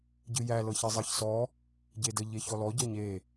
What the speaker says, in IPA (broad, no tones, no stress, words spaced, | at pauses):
ɟɨjæ lɤçezˤɤçsɔ | ɟedə ʎeçɔlɔ ɟɤɲe